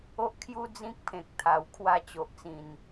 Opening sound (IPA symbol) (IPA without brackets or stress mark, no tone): o